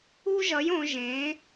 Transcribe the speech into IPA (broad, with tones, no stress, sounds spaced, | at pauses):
u˥ ʒ ʌ˨˥ j õ˩˧ ʒ ẽ˩˧